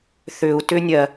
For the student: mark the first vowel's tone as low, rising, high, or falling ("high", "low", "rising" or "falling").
low